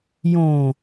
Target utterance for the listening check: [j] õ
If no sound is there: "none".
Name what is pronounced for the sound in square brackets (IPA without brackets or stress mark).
j